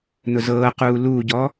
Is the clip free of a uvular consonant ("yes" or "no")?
no